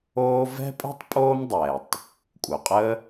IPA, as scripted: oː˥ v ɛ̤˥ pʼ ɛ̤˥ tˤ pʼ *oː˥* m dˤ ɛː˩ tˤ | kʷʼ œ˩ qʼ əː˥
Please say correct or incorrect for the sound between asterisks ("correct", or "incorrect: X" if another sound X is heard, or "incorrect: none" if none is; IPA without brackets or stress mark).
correct